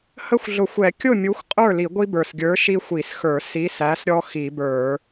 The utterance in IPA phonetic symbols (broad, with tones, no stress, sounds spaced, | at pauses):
h ə˦ xʷ ɮ ʊ˧˩˧ xʷ ɛ˧˩˧ kʲ ʊ˥˩ mʲ u˨˥ xʷ qʼ ə˞˥˩ l i˧˩˧ ɡʷ i˦ b ə˞˨˩ s ɡʲ ə˞˨˥ ʃ i˦ xʷ i˧˩˧ s x ə˞˧˩˧ s i˨˥ s æ˨˥ s ɾʲ ɔ˦ x i˧˩˧ b ə˞˧˩˧